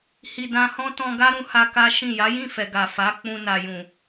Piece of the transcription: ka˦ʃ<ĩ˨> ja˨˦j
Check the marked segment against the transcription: incorrect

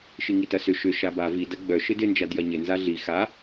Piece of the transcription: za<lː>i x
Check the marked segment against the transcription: incorrect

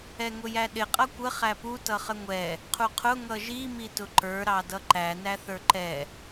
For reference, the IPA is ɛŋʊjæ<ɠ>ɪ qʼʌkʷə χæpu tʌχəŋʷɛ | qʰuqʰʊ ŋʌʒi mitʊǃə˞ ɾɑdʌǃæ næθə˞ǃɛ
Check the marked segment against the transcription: incorrect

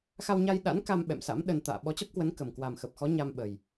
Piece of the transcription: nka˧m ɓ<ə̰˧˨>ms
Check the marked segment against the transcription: incorrect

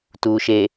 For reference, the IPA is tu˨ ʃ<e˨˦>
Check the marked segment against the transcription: incorrect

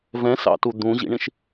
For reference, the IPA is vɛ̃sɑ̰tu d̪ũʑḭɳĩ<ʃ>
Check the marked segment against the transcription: correct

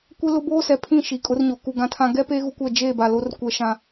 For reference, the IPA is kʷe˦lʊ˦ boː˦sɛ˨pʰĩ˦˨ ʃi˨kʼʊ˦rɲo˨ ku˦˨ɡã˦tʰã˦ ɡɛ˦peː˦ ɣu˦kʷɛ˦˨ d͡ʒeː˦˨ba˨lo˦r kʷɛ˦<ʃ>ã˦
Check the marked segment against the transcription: correct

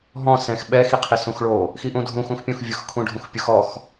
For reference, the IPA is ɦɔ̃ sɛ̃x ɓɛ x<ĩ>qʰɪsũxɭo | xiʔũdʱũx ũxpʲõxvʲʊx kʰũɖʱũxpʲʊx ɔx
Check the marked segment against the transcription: incorrect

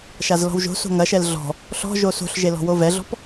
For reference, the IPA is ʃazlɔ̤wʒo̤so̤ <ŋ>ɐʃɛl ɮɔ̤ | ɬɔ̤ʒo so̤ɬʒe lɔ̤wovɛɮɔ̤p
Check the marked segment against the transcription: correct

